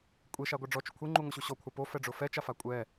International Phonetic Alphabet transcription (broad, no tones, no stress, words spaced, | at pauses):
kʷʼeʃaɡʷa ɖ͡ʐɔt͡ʃʊ kʷʰeŋ͡ǃuŋʷeɕu ɕɔkʷʰa pofɛɖ͡ʐʊ fɛt͡ʃafa kʷʼɛ